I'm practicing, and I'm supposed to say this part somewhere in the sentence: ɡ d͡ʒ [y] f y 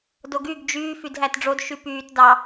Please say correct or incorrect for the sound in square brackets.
incorrect